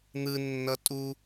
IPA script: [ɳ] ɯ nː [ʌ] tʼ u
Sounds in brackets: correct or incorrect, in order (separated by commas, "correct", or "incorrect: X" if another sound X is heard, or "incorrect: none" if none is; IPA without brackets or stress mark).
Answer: incorrect: n̪, correct